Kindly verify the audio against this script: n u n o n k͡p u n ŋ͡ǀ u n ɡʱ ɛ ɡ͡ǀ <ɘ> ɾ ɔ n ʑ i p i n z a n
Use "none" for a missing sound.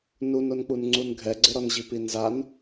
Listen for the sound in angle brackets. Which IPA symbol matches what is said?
ɘ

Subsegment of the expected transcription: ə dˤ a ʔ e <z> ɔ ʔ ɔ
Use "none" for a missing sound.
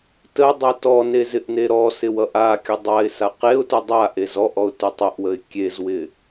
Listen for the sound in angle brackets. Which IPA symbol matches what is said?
z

